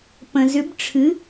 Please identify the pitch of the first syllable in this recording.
low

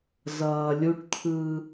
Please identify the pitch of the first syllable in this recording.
low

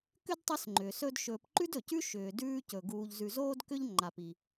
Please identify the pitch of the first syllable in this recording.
high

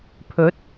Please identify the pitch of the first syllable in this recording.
rising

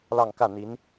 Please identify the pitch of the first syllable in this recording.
falling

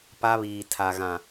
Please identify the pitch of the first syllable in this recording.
high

